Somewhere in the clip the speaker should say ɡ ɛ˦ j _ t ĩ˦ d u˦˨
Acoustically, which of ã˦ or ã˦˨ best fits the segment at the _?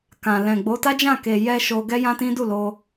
ã˦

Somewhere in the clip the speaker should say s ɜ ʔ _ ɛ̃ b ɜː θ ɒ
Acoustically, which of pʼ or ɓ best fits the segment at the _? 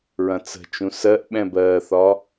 ɓ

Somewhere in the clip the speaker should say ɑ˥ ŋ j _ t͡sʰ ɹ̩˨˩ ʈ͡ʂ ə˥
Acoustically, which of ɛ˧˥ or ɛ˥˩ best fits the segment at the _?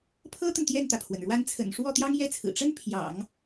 ɛ˥˩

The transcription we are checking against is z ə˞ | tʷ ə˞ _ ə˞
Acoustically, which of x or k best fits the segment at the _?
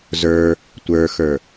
x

